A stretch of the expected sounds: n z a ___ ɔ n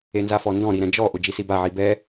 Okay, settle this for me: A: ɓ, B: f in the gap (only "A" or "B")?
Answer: B